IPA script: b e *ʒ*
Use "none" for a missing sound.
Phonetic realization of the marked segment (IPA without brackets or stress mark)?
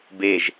ʒ